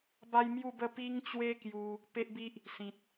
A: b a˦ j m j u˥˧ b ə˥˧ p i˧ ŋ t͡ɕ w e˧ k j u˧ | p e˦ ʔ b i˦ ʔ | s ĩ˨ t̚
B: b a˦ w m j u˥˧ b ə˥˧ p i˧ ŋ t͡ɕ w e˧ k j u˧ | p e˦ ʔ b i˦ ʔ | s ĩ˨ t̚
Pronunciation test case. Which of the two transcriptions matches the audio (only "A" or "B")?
A